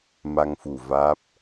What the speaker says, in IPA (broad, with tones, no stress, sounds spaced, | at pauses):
m a˧ ŋ f u˨˩ v aː˦˥ p̚